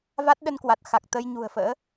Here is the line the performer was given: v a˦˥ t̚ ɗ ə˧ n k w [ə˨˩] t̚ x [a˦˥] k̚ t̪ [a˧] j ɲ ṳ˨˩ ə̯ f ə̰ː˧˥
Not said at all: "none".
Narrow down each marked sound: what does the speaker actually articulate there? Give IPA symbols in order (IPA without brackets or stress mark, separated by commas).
a˨˩, a˨˩, ə˧